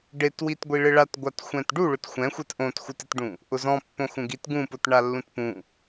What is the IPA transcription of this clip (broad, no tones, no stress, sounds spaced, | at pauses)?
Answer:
ɖ e t w i t ɡʷ i ɭ ɪ ɭ a t ɡʷ a t xʷ ɛ̃ t ɖ u ɭ ʊ t xʷ ɛ̃ xʷ ɛ t ʔ õ t x u t ɪ t ɖ ũ | ʔ ʊ z ɔ̃ pː õ x ũ ɡ i t ɡ ũ p ʊ t ɳ a lː ũ t p ũ